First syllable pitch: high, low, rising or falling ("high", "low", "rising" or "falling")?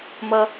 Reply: low